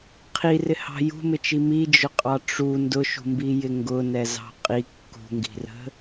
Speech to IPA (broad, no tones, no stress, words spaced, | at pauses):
qʰirɪhɑ̤ jṳmɪt͡ʃi mid͡ʒʊqʼɑ ʈ͡ʂu ndʊʃṳmbijɪ ŋɡʊnɛzɑ̤ qʼi kːṳŋɡi̤rə̤